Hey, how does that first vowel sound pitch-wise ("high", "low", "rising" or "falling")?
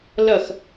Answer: falling